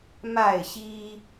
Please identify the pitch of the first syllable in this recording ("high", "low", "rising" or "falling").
falling